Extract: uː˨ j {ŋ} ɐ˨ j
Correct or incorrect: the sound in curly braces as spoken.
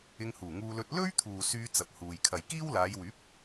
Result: incorrect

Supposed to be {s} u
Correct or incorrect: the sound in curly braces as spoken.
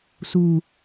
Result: correct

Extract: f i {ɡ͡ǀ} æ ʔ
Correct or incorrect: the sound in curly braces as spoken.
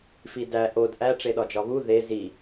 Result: incorrect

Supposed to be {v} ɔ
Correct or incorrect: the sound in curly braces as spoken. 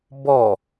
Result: incorrect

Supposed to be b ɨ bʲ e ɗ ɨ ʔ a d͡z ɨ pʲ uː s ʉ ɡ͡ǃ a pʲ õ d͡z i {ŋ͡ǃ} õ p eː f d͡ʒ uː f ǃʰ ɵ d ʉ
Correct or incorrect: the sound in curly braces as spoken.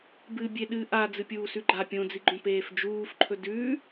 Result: incorrect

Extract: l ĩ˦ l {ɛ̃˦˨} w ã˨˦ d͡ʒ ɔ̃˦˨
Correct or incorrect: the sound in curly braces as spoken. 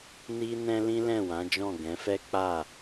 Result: correct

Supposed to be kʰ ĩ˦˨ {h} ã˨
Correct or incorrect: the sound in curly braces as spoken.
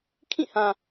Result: correct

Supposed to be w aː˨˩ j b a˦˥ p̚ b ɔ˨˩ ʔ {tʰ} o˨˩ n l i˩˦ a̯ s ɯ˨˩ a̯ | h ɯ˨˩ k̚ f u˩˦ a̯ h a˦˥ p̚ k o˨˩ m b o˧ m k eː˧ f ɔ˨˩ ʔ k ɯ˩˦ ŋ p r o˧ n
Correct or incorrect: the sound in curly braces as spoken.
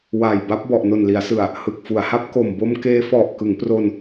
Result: incorrect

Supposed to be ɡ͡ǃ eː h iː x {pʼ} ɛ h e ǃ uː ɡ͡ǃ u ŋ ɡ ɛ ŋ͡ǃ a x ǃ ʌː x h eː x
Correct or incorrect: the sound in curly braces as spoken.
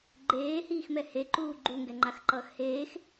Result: incorrect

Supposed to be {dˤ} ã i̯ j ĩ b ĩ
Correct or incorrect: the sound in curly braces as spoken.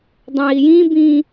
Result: correct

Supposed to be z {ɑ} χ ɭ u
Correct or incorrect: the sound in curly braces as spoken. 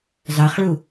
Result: correct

